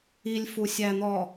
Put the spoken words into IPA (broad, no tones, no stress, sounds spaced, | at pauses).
i lʲ f u sʲ æ n̪ ɔ